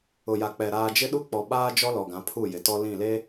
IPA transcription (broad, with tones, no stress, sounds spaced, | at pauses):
ʊ˨ j a˨ k͡p ɛ˨ ɾ aː˨ d͡ʒ ɪ˦ ɗ u˦ k͡p ɔ˨ ɓ aː˦ d͡ʒ ɔ˦ l ɔ˨ ɡ ã˨˦ pʰ u˦˨ j ɪ˨ t ɔ˦ l ĩ˦˨ l e˦